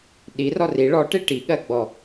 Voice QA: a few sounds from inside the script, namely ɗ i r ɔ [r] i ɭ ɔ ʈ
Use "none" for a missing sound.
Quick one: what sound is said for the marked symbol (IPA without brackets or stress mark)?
r